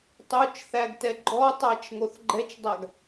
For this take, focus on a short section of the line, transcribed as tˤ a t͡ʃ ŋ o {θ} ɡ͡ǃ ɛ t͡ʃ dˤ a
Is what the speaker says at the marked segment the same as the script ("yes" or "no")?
yes